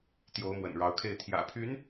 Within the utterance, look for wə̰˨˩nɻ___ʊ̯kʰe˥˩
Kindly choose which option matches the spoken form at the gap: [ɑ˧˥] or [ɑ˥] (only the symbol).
ɑ˧˥